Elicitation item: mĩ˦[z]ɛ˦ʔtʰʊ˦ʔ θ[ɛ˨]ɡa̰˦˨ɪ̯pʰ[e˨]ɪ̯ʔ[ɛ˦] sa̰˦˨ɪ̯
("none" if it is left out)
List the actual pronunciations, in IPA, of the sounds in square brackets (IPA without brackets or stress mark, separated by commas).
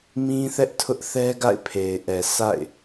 θ, ɛ˦, e˨, ɛ˨